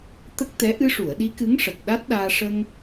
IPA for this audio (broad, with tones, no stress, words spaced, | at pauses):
t̪ə˦˥k̚t̪ɛ˧˥ ʔɨ˧ʂu˨˩˨ə̯ɗi˧˥ kɨ˧˥ŋʂə˨˩k̚ ɗa˦˥t̚ɗaː˧ ʂə˧ŋ